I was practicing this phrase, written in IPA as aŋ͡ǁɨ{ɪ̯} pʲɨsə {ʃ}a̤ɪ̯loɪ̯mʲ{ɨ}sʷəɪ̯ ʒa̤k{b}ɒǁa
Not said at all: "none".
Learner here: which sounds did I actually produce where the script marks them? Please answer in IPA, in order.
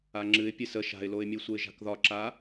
ɪ̯, ʃ, ɨ, ð

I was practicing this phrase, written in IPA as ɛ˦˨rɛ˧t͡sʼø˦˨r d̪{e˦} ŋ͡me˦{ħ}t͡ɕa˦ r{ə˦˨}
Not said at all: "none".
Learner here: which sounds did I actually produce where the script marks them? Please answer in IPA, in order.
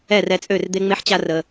e˦, ħ, ə˧

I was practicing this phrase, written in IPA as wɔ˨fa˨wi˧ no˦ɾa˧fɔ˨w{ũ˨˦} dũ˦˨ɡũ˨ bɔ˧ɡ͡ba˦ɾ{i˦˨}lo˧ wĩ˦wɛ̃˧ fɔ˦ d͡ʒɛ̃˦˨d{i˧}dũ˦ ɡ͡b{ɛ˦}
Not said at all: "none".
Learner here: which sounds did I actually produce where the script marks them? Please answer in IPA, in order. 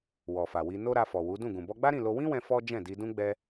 u˨˦, ĩ˦˨, i˧, ɛ˦

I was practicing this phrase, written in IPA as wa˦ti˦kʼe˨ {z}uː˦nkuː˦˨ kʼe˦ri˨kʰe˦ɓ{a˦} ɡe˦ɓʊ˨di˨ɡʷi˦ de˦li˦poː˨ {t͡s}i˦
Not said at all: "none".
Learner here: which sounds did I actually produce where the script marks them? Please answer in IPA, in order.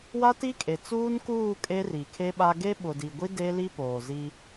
t͡s, a˦, z

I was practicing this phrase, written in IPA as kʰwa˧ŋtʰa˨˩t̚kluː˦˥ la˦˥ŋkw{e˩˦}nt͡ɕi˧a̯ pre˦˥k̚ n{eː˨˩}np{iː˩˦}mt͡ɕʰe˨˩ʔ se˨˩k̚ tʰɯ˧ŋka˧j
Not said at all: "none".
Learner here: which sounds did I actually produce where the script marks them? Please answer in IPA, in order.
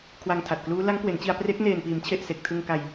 e˩˦, eː˨˩, iː˩˦

